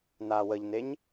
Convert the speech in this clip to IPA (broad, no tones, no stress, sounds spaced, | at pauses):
n aː w ə ʎ n e ɲ